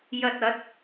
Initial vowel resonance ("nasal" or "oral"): oral